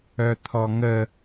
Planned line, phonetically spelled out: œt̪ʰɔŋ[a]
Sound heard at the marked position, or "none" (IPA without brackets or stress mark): ə